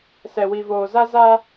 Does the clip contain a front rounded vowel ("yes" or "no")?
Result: no